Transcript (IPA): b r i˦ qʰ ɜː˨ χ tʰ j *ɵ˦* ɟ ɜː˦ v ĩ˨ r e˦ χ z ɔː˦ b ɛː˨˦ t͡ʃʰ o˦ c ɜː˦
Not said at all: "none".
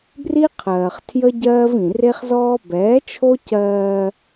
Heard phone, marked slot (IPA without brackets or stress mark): ə˦